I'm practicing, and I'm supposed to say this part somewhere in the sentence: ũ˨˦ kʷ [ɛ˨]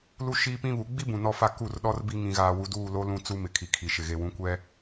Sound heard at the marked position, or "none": ɛ˦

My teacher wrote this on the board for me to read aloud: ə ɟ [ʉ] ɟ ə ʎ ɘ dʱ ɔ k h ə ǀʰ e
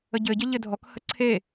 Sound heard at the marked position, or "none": ɘ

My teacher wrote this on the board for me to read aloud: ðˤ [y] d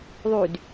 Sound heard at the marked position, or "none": y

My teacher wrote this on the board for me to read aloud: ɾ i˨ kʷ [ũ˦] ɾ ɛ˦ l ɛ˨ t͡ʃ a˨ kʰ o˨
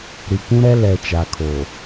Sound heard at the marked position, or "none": ũ˦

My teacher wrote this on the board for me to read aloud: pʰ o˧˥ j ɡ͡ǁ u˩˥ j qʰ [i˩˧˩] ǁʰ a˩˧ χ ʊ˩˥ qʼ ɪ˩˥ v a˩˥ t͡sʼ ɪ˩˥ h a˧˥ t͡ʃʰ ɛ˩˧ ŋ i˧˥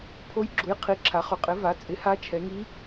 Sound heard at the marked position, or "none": i˩˧˩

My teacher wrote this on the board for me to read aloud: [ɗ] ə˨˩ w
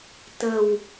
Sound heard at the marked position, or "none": t̪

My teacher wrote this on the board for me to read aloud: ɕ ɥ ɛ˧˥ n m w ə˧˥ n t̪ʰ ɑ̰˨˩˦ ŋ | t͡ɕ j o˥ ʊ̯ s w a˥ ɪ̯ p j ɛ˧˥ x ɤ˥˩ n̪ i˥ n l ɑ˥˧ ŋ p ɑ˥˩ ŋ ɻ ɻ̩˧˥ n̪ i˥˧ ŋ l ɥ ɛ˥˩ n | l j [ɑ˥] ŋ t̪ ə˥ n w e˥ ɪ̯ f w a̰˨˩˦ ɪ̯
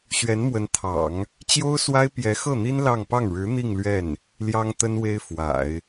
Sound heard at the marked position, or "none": ɑ˥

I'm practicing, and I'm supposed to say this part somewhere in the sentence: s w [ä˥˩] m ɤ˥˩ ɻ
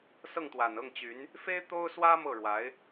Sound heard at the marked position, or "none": ä˥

